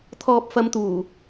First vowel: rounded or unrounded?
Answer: rounded